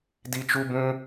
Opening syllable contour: high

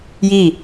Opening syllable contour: falling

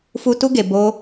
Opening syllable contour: high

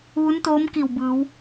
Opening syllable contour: rising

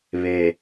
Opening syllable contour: low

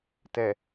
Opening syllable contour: low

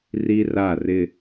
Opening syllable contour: high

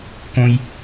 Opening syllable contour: high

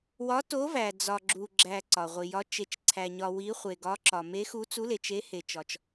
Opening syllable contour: rising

